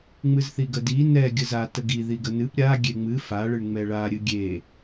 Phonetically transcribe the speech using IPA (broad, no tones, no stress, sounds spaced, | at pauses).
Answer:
ŋ͡m ɨ z θ i ɡ ə d i n ɛ ɡʲ ə z a t ə ɡ i ð i ɡ ə n ɨ p ɾʲ a ɡʲ e ŋ͡m ɨ f a ɭ ɨ ɳ ŋ͡m ɛ ɭ a ɾʲ ɨ ɡʲ e